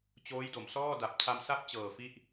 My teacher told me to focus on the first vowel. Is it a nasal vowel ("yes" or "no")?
no